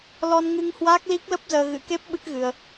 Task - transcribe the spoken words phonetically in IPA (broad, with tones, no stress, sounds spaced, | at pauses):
l ɔ˧ n ŋ ɨ˧ ŋ h w aː˦˥ k̚ l i˦˥ k̚ l ə˦˥ p̚ z əː˧ ɣ ɨ̰˧˥ k e˦˥ p̚ ɓ ɨ˦˥ k̚ ɣ ɨ˧ ə̯